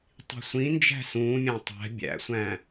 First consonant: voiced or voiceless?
voiceless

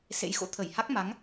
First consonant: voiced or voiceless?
voiceless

